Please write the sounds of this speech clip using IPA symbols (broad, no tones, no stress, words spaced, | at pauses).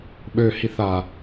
ɓøhiθa